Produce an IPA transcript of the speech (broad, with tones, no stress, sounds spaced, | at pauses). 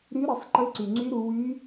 ɾ y˧˥ ɾ ə˩˧ sˤ ǃ ɘ˧˥ ǀ y˩ ŋ͡ǀ y˧˥ ɾ u˩˧ w y˧˥